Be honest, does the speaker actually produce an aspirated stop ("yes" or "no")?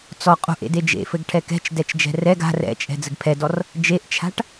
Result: yes